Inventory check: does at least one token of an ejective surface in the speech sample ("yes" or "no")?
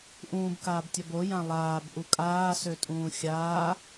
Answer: yes